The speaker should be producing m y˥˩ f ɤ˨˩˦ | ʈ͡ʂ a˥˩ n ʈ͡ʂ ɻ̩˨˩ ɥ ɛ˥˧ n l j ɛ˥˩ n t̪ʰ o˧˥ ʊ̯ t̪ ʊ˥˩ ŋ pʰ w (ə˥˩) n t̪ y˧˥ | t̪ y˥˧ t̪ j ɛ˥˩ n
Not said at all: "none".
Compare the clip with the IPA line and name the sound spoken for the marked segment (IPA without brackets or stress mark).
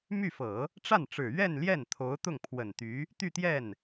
ə˨˩